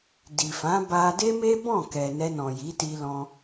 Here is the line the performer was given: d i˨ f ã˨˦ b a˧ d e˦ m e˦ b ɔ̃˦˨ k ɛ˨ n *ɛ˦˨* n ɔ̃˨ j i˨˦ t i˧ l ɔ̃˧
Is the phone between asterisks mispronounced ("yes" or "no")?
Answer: yes